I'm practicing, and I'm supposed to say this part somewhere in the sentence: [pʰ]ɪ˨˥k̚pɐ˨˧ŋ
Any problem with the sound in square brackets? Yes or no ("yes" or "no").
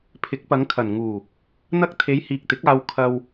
no